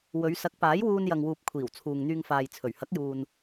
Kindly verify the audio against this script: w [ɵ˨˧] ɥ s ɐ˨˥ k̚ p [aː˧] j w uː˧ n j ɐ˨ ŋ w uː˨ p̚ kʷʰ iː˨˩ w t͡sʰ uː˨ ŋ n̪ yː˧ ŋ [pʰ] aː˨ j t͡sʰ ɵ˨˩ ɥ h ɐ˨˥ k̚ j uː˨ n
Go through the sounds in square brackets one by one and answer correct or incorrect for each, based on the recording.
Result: correct, incorrect: aː˨˥, incorrect: f

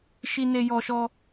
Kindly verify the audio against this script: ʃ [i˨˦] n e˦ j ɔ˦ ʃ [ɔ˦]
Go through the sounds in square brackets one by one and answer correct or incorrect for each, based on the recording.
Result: incorrect: i˦, correct

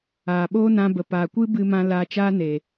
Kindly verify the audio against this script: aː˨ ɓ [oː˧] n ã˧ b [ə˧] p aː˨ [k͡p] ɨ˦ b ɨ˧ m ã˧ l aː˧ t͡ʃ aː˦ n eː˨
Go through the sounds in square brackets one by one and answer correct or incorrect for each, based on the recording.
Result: incorrect: oː˦, incorrect: ə˨, incorrect: kʷ

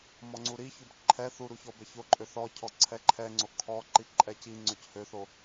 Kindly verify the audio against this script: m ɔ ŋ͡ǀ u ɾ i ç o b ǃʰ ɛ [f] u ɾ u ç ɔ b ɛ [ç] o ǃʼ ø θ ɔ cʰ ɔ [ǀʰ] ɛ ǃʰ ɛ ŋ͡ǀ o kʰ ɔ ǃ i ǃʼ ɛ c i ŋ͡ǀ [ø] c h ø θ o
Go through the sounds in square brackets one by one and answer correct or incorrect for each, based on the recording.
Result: incorrect: θ, correct, correct, correct

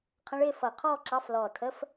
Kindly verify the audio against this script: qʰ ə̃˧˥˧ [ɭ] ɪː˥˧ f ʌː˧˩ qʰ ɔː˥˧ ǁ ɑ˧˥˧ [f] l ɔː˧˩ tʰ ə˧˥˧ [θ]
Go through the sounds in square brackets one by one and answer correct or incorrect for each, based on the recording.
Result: correct, correct, incorrect: f

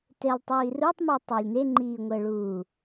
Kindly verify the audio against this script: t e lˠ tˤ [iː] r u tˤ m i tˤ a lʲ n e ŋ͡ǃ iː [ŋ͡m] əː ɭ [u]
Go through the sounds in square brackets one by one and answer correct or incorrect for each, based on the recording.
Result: correct, incorrect: ŋʷ, incorrect: uː

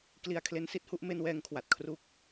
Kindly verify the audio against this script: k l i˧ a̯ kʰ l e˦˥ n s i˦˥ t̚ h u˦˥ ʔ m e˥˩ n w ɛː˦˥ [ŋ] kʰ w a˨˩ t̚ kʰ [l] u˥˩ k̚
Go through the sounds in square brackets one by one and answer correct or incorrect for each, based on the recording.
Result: correct, incorrect: r

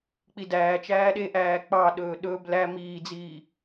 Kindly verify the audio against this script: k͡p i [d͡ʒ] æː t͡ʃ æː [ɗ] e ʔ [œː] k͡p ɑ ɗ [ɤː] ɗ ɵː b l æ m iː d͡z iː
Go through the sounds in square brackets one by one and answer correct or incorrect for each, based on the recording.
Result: incorrect: d, correct, incorrect: æː, incorrect: ɵː

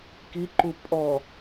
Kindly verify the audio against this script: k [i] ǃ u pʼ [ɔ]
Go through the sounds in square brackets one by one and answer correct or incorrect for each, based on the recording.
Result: correct, correct

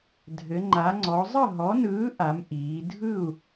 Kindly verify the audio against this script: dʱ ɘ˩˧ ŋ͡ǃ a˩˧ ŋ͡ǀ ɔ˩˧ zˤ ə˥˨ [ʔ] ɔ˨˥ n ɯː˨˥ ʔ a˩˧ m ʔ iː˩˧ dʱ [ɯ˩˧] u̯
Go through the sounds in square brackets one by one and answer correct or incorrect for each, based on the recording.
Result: incorrect: ɦ, incorrect: ɯ˥˨

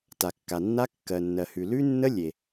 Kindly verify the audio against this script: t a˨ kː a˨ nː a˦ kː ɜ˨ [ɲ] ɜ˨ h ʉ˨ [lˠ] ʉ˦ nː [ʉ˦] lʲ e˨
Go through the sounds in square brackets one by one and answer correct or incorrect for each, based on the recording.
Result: incorrect: nː, incorrect: l, incorrect: ə˦

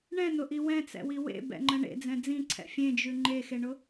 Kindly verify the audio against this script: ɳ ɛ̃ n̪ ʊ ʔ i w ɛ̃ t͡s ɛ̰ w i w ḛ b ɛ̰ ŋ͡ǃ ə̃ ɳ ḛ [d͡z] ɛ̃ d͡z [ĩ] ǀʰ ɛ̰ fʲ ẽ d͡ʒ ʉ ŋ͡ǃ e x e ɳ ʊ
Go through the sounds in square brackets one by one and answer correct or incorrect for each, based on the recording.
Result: correct, correct

